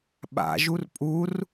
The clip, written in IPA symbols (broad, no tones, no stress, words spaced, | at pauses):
ɓa̰ ʒurpʼur